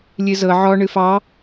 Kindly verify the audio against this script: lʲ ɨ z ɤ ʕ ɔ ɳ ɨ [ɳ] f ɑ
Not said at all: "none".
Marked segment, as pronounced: none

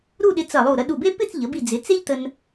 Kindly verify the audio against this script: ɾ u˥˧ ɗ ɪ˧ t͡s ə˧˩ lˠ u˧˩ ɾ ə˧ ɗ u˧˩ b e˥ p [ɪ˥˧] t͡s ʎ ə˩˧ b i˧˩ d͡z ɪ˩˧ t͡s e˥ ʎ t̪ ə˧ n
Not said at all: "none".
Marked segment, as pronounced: ɪ˥˧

